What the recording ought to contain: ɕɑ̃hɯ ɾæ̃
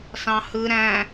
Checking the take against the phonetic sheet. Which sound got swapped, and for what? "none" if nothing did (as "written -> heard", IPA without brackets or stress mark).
ɕ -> s